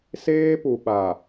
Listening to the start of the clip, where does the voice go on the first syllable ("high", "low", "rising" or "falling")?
high